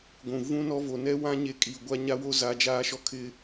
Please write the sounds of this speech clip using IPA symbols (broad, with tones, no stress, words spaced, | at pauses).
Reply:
ɡʷũ˨ vũ˦nɔ˦ vo˨nɛ˦wã˦ ɲe˦ kʼi˨ ɡʷa˦ɲa˦wo˦ za˦ d͡ʒaː˦ʃɔ˦kʰɪ˦